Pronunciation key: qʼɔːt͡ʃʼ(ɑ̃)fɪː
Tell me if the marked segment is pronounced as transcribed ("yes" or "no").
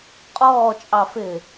no